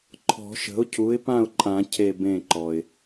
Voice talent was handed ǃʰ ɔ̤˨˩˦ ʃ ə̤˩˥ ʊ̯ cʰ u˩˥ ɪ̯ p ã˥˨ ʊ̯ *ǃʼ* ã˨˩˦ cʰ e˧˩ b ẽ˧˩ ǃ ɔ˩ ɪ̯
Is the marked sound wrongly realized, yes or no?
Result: no